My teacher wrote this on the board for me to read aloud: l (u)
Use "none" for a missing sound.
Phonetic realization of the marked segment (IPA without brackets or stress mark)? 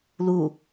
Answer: u